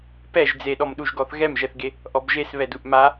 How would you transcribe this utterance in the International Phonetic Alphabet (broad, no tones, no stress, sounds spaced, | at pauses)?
p ɛ ʒ d͡z e ɗ ɔ m ɗ u ʒ ɡ ɔ θ ɣ ɛ m ʒ ɛ θ ɡ e | ʔ ɔ b ʒ e s β ɛ d u ʔ m a